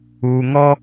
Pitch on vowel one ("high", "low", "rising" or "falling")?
low